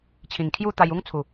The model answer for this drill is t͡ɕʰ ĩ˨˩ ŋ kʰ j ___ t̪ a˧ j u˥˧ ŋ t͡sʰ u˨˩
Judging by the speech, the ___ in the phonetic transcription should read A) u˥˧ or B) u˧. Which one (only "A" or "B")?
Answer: A